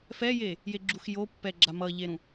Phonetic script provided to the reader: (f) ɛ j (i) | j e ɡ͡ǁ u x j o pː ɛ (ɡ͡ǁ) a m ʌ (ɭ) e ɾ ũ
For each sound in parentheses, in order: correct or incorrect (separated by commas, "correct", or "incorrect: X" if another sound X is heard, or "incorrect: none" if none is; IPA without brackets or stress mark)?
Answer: correct, incorrect: e, correct, incorrect: ʎ